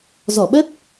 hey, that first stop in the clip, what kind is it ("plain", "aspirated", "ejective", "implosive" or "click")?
implosive